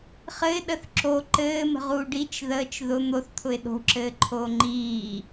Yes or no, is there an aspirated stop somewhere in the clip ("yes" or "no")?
yes